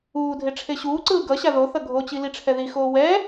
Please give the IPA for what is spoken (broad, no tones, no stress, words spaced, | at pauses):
uːdʱe ʈ͡ʂʰeɕuːǀɯː ɡʌɕa ðoθʌ ɡʱot͡ɕi liʈ͡ʂʰɛðixoː wɛ